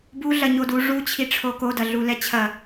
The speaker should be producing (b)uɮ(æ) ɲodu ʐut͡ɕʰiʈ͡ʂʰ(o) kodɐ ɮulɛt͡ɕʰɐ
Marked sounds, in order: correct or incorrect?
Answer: correct, incorrect: ɐ, correct

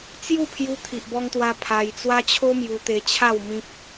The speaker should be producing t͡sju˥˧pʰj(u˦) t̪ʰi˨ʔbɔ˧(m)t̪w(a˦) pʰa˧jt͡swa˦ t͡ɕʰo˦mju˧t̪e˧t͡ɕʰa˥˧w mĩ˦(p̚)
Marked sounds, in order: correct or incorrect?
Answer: incorrect: u˧, incorrect: ŋ, incorrect: a˧, correct

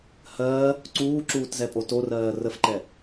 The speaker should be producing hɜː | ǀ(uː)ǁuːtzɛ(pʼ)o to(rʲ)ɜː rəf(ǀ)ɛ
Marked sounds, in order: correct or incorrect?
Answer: correct, correct, incorrect: r, incorrect: ǃ

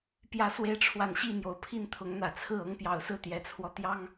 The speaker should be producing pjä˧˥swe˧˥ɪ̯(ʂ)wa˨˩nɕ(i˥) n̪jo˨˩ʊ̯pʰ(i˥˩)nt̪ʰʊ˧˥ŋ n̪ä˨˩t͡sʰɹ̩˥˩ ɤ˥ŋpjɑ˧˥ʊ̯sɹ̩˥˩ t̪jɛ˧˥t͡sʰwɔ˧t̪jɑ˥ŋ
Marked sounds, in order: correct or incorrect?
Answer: incorrect: ʈ͡ʂʰ, incorrect: i˥˩, correct

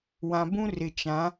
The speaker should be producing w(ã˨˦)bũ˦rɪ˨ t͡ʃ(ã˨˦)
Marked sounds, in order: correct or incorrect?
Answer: incorrect: ã˨, correct

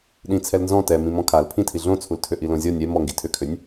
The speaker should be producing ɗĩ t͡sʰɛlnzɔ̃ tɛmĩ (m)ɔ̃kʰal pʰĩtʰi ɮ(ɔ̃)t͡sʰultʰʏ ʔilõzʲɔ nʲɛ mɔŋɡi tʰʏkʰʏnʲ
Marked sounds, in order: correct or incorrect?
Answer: correct, incorrect: õ

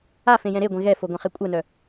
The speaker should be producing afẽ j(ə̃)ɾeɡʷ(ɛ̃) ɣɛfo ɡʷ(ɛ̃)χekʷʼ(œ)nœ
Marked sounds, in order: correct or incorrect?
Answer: incorrect: ɛ̃, incorrect: ẽ, correct, correct

